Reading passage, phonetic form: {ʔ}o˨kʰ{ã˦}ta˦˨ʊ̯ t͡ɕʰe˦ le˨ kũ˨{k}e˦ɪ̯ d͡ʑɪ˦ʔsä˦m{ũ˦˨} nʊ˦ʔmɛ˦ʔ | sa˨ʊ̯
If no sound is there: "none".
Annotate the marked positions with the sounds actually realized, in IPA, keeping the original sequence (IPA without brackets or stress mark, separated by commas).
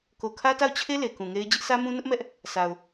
k, ä˦, ŋ, ũ˦